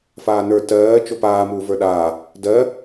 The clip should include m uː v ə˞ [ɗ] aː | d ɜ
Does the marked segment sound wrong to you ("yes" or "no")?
no